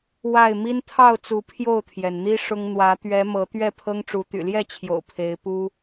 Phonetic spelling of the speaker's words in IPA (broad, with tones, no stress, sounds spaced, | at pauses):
w a˥˨ ɪ̯ m i˦ n t̪ʰ ɑ˥˨ ʊ̯ t͡s u˨˦ pʰ j o˥˨ ʊ̯ t̪ʰ j ɛ˩ n n̪ i˦ ʂ ʊ˦ ŋ n̪ w ä˨˦ t̪ ɥ ɛ˨˦ m ɤ˨˦ t̪ ɥ ɛ˥˨ pʰ ɤ˦ ŋ ʈ͡ʂ u˨˦ t̪ y̰˨˩ l j ɛ˥˨ t͡ɕʰ j o̰˨˩ ʊ̯ pʰ e˨˦ ɪ̯ p u˦